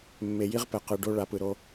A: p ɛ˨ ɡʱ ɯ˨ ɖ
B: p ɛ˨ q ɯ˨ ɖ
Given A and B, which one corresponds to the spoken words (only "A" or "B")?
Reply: B